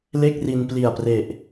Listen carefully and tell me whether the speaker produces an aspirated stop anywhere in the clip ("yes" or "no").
no